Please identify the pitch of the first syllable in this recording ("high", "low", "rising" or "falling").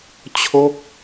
falling